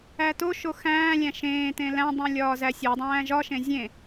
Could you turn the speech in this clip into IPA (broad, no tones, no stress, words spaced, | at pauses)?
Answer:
ætoʃo xæ̃ːlʲæ̃ ʃẽːtẽ læ̃dˤũ lʲɒːzæsʲodˤæ̃ː ʒɒʃẽ zʲẽ